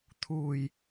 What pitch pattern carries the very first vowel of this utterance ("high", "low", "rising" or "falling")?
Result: low